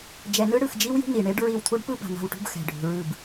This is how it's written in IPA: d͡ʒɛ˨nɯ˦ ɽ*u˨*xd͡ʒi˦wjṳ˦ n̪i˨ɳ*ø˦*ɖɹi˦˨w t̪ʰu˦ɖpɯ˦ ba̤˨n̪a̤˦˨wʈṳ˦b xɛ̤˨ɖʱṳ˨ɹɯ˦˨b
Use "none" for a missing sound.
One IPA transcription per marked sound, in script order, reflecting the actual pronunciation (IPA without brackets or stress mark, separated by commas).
ɯ˨, e˦